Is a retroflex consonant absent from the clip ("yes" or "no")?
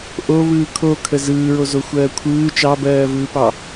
yes